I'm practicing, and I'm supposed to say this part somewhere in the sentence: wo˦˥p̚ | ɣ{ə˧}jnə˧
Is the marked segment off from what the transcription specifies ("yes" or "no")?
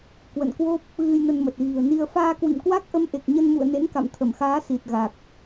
yes